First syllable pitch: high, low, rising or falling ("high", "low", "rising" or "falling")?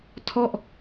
falling